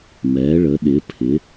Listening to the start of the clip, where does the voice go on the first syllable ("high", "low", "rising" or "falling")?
rising